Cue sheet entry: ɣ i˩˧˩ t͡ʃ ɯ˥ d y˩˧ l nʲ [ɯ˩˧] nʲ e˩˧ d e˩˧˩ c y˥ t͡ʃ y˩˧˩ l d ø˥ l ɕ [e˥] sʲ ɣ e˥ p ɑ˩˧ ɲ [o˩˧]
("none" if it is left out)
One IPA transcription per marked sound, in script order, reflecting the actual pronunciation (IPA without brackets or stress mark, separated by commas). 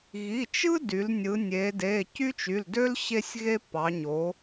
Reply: ɯ˩˧, e˥, o˩˧